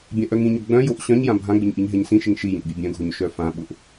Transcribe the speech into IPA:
bʲãʔœŋĩɲʊ ɡ͡bœ̃joʔ ɕœ̃ɲjã bʱãɡ͡bɪɲ ʔiɲɦɛɲsĩʃɪŋ ʃi jĩʔbʲœbʲœ̃ɡʱoɲ ʃœfãɓʊʔ

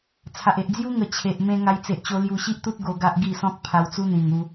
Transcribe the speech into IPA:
t͡sʰa˨ʔe˨ʔd͡zju˦ ŋə˨˩t͡ɕʰe˨ʔmẽ˧ ŋa˧j t͡se˨ʔt͡ɕo˧ lju˧ɕi˦ʔt̪u˦t̚ ɡo˧ɡa˦ʔɡi˥˧sɔ̃˦k̚ pʰa˧wt͡su˦n̪ĩ˨˩ŋu˧

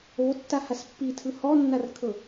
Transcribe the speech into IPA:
otːahas pːitʰɯ hɔnːarkʰɤ

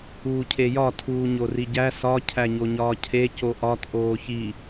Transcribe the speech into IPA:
uːcʰejɒ tʰuːɲoriɟæ sɒ cʰæɲoɲɒːcʰe coʔɒt ʔoːçi

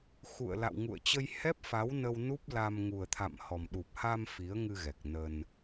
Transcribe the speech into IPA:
xṵ˧˨ə̯la̰˧˨w ŋṵ˧˨ə̯t͡ɕə˧jhɛ˦˥p̚fa˨˦w nə˧wnu˦˥p̚la˧m ŋu˨˩ə̯t̪ʰa̰˧˨m hɔ˨˩mɗu˨˩p̚ ha˧m fi˨˦ə̯ ŋɨ˧ɣɛ˨˩k̚nə˧n

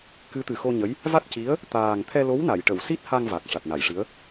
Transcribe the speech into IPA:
kɨ˧˥t̪ɨ˨˩xo˧ɲə˧˥j | va˦˥t̚ci˧˥ə̯ | t̪aː˨˩ŋ t̪ʰɛ˧lo˧˥wna˨˩˨j ʈə˨˩˨wsi˦˥t̚ ha˧ŋ va˨˩k̚ʂa˨˩t̚na˨˩˨jʂɨ˧˥ə̯

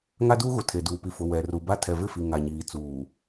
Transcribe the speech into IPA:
ŋa˦duː˦ɣu˨ tʰe˨duː˨ pi˨fʊ˨ wɛ˨ ru˨ba˦ tʰɛ˨vɪ˦˨fi˨ ŋa˨ɲiː˨t͡suː˨

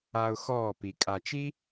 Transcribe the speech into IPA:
a˧ʊ̯xɔː˦˨pi˨ kʼa˨t͡ʃi˦

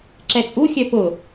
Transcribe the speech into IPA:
ǁɛt͡sʼuxʲœ pʊ

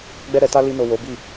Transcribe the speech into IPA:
ɡ͡bɛ˦ɾɛ˧ta˦ li˧no˨ wo˨˦bi˦˨

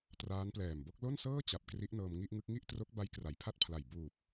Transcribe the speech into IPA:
traː˦˥nplɛː˨˩mbo˦˥k̚ lo˥˩nsɤː˥˩ t͡ɕa˨˩p̚ kri˦˥ʔnɤː˧m ŋi˥˩ʔŋɯ˦˥k̚ ŋi˥˩ʔtro˦˥k̚ ba˦˥jkra˩˦jpʰa˥˩t̚pʰla˨˩j buː˨˩p̚

